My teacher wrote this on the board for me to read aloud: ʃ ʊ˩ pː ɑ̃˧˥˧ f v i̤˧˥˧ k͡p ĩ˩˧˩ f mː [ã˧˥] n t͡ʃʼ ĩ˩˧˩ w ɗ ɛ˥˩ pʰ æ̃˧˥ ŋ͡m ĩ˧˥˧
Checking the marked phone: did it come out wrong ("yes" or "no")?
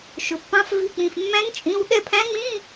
yes